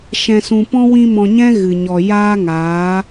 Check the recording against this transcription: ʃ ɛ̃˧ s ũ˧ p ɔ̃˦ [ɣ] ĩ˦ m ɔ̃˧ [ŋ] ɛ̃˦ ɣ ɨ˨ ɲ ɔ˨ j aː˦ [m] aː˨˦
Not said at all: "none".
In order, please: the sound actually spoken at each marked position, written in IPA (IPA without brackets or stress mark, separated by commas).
w, ɲ, ŋ